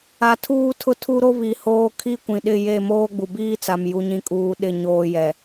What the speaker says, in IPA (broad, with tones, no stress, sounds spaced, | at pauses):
a˨ tʰ uː˦ tʰ ʊ˦ tʰ u˦ ɾ o˦ β i˨ h oː˦ kʰ i˦ kʷ ĩ˨ ɗ ɪ˦˨ j e˦˨ m oː˦ ɡ͡b u˨ b iː˦ t͡s a˨ m j u˨ ɲ ĩ˨ kʼ uː˨ ɗ ɪ˦˨ ɲ oː˦ j ɛ˨